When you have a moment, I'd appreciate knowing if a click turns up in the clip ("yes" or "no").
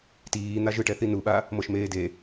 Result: no